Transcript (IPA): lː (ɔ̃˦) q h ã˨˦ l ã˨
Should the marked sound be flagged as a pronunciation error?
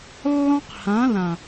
no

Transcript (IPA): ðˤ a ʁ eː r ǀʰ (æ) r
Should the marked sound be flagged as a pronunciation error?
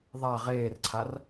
yes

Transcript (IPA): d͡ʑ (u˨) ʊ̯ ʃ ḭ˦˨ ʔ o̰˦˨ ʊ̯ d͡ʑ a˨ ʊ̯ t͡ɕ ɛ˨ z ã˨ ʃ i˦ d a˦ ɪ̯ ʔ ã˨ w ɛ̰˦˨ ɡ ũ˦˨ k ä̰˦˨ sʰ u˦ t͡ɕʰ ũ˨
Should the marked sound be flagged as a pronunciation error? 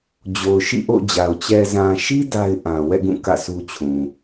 yes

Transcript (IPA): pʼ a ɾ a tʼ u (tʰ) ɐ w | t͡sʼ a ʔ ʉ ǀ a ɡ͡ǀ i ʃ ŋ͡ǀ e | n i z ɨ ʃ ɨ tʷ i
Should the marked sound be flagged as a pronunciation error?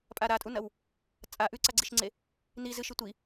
yes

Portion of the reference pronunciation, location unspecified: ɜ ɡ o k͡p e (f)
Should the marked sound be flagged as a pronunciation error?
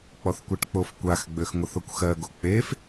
no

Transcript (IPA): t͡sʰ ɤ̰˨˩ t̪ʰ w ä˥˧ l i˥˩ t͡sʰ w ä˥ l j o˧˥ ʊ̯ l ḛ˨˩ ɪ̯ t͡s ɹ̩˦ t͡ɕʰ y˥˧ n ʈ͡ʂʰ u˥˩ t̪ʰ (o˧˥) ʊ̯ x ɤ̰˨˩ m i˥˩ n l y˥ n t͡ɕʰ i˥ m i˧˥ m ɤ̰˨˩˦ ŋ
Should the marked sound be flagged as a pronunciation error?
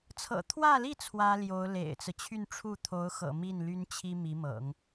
no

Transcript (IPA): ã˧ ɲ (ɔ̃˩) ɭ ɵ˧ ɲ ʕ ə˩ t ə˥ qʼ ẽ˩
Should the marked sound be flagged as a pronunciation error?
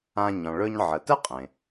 no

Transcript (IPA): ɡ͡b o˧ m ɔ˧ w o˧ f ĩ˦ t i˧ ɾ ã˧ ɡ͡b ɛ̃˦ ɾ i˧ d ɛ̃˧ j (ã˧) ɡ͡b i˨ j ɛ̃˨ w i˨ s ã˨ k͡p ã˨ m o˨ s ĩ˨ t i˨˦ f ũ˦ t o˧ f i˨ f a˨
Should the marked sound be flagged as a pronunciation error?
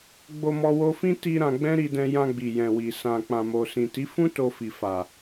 no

